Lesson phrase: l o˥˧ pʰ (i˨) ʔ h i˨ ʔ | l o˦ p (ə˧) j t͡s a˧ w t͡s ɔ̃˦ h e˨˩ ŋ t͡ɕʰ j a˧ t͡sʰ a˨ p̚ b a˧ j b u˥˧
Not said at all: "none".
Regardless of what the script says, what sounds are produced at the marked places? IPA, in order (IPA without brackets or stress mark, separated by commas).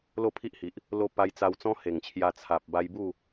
i˦, a˧